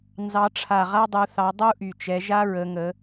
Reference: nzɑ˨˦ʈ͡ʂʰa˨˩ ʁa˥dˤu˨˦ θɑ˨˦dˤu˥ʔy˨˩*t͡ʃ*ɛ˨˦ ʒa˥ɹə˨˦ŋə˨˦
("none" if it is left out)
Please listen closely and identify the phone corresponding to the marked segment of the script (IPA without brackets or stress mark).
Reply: t͡ʃ